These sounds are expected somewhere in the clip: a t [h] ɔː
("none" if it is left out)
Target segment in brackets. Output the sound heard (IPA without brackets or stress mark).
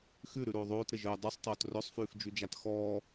x